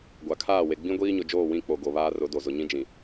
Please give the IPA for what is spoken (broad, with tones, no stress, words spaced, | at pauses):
ɡʷa˨kʰaː˦˨ we˨ ɡ͡bĩ˦ ɡʷiː˦ɲʊ˨ d͡ʒoː˦˨wĩ˦˨k͡po˨ ɡo˨ βaː˦rʊ˨˦do˨zʊ˨ ɲĩ˦d͡ʒĩ˨